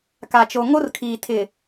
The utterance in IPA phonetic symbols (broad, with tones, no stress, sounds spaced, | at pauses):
k a˨ t͡ʃ o˨ ŋ o˦ r kʰ iː˨ tʰ ɪ˨